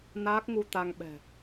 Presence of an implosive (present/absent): present